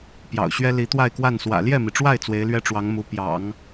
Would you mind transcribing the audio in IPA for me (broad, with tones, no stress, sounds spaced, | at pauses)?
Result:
p j ɑ̰˨˩ ʊ̯ ɕ ɥ ɛ˥ l i˧˥ t̪ w a˥˧ ɪ̯ k w a˥˩ n s w ä̰˨˩ l j ɛ˥˩ m i˩ ʈ͡ʂ w a˥˩ ɪ̯ t͡s w e˧˥ ɪ̯ l ɥ ɛ˥ ʈ͡ʂ w ɑ˧˥ ŋ m u˧˥ p j ɑ̰˨˩˦ ŋ